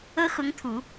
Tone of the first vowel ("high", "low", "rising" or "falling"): high